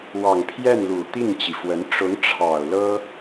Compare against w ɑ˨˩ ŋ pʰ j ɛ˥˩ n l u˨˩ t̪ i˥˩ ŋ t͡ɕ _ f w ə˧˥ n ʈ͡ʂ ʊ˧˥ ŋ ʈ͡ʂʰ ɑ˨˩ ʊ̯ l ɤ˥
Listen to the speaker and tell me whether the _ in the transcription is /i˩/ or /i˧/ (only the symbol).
i˩